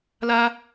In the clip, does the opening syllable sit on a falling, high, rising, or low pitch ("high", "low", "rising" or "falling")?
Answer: high